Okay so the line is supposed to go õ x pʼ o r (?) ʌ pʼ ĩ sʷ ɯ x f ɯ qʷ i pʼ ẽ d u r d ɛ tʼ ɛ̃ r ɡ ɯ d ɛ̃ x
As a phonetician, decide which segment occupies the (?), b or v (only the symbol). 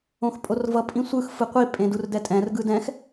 v